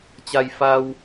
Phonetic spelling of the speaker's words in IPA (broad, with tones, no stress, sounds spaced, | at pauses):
t͡ɕ a˧ j f a˧ w